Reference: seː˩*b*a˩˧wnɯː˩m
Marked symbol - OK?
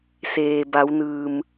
yes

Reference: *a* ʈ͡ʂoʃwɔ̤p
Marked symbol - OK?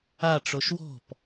yes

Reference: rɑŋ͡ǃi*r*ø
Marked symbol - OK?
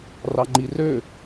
yes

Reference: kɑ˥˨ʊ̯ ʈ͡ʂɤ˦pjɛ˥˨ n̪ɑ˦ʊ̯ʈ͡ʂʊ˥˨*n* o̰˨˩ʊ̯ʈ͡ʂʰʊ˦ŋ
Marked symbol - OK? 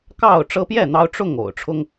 no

